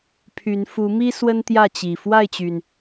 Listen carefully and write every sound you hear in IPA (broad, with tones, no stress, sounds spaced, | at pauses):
pʰ y˨˦ n f u˨˦ m i˦ s w ə˦ n t̪ j ä˥˨ t͡ɕ i˨˩ f w a˥˨ ɪ̯ t͡ɕ y˩ n